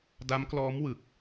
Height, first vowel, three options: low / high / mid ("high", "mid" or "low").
low